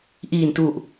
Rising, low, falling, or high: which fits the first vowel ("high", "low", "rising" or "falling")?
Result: low